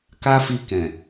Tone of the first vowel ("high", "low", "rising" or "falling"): high